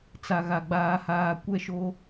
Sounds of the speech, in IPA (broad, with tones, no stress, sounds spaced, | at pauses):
t͡s a˨ ɣ a˨ ɡ͡b aː˨ h aː˨ kʷ ɛ˦˨ ʃ o˦